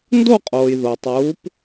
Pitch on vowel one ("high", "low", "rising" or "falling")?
falling